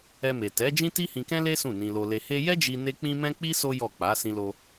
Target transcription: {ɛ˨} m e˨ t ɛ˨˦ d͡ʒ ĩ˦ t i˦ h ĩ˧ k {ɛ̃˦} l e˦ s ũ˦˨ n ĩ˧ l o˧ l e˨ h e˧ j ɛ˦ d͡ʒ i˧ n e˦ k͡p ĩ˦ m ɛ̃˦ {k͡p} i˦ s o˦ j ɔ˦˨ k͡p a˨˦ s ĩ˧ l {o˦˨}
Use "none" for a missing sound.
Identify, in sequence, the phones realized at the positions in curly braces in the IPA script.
ɛ˧, ɛ̃˦, k͡p, o˧

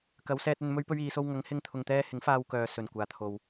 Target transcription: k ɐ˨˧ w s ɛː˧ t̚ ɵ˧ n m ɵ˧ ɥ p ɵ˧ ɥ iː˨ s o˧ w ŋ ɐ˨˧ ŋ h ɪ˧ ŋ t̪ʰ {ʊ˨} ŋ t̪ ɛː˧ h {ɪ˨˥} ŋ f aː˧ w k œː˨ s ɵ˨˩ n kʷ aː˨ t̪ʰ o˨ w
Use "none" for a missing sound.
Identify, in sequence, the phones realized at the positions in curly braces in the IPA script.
ʊ˨, ɪ˨˥

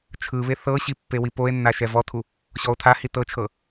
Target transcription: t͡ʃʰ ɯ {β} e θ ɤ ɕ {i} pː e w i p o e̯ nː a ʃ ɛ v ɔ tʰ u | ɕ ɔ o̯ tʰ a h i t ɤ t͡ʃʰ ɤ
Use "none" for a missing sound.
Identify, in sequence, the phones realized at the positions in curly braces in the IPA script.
β, i

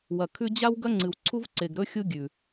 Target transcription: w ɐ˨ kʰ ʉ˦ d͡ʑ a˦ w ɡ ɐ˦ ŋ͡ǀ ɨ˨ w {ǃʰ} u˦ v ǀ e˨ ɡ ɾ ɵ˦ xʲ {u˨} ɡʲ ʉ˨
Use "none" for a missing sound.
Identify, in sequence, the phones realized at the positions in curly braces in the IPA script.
ǀʰ, u˦

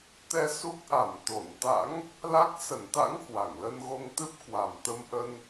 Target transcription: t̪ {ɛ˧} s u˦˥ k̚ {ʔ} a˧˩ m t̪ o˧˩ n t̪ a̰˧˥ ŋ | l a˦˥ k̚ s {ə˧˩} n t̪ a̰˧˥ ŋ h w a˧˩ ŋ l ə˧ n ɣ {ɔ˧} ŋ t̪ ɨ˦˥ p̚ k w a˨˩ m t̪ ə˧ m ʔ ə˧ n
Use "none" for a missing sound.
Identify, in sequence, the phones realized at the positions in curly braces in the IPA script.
ɛ˧, ʔ, ə˧˩, o˧

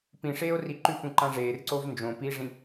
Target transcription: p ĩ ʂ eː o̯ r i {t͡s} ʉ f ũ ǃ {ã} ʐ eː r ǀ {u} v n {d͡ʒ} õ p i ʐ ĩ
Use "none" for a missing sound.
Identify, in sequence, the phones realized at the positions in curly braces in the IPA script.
ǃ, ã, o, d͡ʒ

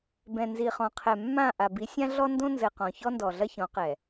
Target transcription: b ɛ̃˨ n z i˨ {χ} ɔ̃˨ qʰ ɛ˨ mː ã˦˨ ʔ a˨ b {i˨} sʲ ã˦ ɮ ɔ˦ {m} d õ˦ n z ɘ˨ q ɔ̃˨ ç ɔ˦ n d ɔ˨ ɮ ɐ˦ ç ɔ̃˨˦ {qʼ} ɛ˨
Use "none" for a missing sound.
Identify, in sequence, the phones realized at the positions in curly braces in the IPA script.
χ, i˨˦, n, q

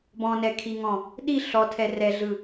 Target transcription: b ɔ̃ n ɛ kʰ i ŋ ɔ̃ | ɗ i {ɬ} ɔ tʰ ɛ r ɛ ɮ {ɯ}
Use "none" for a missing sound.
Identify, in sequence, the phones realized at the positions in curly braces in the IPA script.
ɬ, ɯ

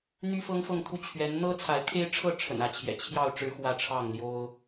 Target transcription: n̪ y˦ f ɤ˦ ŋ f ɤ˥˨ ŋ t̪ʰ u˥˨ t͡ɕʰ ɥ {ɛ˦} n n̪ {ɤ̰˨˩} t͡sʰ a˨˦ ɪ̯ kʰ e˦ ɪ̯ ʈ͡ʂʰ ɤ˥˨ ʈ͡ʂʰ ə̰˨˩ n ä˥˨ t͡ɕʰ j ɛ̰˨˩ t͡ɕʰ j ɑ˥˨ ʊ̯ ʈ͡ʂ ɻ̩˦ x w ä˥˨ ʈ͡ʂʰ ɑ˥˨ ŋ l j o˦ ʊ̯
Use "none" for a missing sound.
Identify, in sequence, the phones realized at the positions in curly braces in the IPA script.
ɛ˨˦, ɤ˦

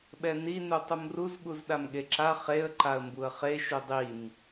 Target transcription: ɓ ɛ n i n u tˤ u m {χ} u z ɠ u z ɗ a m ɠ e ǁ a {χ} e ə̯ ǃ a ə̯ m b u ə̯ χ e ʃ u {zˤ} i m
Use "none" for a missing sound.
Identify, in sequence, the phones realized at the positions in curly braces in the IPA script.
r, χ, dˤ

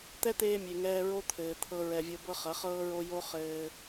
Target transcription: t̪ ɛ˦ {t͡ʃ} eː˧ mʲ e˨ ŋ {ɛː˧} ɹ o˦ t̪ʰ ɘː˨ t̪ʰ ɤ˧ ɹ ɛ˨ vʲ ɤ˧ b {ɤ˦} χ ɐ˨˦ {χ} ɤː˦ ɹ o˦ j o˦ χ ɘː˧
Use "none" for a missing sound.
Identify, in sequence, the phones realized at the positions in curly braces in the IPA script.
t̪, ɛː˧, ɤ˦, χ

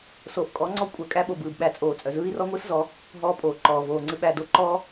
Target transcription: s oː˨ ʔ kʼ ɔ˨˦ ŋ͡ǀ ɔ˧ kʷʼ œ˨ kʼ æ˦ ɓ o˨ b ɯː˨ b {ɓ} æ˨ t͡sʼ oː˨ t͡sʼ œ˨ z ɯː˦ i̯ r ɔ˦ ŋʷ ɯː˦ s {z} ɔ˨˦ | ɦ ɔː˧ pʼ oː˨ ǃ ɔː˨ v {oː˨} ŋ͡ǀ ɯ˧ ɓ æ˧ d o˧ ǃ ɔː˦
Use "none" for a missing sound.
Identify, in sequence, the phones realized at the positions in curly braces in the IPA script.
ɓ, z, oː˨

